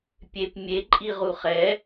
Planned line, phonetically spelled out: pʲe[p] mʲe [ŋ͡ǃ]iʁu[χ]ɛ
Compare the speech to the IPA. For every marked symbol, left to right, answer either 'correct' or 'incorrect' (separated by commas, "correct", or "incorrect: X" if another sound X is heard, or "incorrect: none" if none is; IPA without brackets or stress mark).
correct, incorrect: ǃʼ, correct